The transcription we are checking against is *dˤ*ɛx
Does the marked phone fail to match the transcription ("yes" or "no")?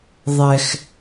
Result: yes